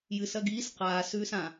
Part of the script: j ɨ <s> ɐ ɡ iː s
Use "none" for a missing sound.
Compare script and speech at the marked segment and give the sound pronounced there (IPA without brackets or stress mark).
s